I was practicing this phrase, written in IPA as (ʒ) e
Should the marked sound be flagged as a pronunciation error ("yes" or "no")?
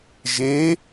no